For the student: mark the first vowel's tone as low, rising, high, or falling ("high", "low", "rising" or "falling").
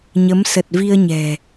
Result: rising